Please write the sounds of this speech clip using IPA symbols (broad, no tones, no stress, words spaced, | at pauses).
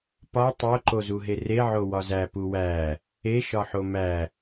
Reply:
pɒ tˤo ǃozuɦere ʕowɒzæ puwæ | e ʃɒħomæ